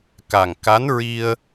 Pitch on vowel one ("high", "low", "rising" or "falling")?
low